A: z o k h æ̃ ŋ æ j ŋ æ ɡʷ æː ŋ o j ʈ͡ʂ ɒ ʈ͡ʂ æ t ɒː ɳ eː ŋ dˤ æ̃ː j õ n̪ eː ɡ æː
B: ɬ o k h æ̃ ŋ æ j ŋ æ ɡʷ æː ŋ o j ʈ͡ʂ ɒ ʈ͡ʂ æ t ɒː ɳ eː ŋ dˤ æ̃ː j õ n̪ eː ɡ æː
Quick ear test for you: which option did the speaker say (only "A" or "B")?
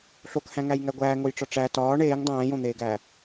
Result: B